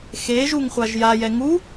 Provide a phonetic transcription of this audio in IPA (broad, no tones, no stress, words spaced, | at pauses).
xeʒuŋ χʷaʒjajɛ ŋu